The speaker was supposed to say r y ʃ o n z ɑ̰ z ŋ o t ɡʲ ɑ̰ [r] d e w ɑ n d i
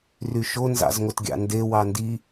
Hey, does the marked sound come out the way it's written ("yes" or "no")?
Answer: no